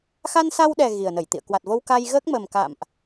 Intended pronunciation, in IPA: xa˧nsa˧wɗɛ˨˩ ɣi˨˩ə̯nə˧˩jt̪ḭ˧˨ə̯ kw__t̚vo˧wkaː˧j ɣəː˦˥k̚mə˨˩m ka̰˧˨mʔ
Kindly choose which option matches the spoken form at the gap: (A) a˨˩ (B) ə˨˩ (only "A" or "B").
A